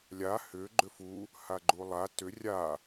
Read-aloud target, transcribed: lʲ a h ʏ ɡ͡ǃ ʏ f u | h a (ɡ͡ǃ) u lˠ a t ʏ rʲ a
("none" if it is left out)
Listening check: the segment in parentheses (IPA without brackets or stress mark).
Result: ɡ͡ǃ